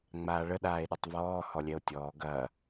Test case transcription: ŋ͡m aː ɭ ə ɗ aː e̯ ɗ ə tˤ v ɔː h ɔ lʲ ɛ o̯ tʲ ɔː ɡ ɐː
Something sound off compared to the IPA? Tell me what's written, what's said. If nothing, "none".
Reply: none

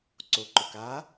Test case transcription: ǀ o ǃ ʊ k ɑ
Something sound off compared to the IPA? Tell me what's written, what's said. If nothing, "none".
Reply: ɑ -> a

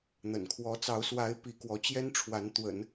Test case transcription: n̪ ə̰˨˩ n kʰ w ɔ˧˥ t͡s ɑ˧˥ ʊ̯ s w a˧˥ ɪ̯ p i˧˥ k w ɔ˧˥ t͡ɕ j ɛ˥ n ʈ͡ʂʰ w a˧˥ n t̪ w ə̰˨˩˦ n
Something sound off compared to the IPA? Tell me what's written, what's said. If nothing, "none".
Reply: none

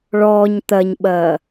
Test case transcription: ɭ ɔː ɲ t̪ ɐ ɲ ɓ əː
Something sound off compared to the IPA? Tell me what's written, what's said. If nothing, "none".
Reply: əː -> ɐː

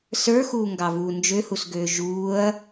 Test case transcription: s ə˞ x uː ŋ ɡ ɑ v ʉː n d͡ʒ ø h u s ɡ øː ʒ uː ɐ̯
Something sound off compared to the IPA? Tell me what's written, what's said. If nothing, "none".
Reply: ʉː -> uː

